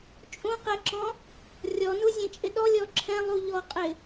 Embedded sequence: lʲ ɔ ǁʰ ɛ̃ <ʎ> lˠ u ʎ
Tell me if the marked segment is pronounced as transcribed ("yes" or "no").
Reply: no